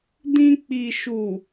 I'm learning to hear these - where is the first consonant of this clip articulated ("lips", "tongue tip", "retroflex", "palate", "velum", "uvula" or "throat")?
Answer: tongue tip